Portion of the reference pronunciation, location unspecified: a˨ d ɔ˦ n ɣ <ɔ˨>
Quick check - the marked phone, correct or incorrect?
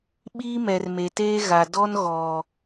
correct